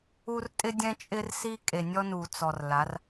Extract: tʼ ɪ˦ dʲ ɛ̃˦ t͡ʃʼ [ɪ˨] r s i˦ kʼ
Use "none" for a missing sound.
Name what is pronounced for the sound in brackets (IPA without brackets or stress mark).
ɪ˦